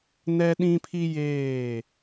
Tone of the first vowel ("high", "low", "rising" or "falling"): high